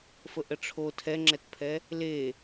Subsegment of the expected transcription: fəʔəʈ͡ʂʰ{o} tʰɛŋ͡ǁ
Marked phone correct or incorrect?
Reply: correct